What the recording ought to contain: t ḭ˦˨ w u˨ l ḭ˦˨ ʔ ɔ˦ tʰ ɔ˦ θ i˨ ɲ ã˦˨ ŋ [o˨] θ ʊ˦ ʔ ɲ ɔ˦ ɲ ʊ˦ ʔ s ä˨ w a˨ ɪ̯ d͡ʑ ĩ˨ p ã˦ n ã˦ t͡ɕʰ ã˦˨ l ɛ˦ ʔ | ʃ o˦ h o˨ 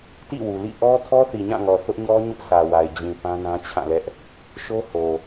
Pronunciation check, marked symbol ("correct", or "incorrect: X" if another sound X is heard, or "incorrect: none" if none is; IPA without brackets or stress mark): incorrect: ɔ˨